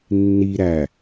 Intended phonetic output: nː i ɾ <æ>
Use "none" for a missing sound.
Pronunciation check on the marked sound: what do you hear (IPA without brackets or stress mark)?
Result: æ